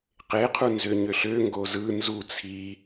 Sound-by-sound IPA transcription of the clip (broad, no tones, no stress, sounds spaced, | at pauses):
q e qʰ u n z ø ɲ ø ɬ ø ŋ ɡ o z ɯ n z u t͡sʰ i